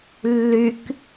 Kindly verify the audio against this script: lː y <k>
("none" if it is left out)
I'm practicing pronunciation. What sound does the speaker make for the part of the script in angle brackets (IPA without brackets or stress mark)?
k